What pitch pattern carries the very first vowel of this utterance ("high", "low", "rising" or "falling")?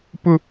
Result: high